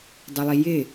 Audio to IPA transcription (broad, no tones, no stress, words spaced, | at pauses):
dˤʊlˠijɪ